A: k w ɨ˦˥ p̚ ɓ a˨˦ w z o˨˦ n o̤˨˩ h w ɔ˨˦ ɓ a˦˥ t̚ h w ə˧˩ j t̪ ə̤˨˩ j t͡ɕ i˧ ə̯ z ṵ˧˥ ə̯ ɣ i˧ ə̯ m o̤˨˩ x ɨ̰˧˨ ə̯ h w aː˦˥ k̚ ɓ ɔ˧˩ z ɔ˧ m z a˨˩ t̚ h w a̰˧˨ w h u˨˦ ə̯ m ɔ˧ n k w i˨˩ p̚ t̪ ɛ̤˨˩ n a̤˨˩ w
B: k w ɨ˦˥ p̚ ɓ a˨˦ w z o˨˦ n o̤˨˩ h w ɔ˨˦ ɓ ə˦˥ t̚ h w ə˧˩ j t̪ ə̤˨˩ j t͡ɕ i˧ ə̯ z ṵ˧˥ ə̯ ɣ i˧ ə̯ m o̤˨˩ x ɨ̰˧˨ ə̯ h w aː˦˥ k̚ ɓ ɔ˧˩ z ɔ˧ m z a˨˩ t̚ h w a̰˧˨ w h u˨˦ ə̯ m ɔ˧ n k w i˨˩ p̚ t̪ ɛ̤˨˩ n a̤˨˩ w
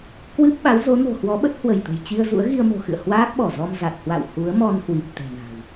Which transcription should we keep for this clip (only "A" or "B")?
B